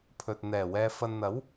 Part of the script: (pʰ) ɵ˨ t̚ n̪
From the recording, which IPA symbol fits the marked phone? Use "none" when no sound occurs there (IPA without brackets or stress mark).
pʰ